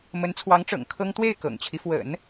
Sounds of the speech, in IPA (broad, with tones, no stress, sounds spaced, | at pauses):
m ə˧˥ n t͡sʰ w ɑ˧˥ ŋ ʈ͡ʂ ɤ̰˨˩ ŋ kʰ ɤ˥ ŋ t̪ w e˥˩ ɪ̯ k ɤ̰˨˩ ŋ t͡ɕʰ i˦ f w ə̰˨˩˦ n